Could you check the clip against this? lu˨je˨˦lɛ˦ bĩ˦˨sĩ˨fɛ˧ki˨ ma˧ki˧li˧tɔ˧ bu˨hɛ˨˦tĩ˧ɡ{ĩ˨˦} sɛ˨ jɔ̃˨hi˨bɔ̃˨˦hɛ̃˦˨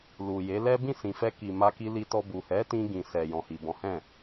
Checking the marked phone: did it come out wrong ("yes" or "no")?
yes